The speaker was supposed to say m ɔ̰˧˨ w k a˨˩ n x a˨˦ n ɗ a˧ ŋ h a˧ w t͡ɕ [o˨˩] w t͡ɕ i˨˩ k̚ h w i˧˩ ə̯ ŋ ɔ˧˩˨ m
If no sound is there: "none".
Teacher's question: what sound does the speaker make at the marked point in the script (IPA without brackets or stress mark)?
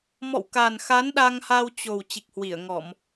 o˨˩